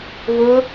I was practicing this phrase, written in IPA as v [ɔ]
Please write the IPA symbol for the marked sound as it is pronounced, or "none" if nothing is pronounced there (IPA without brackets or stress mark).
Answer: ʊ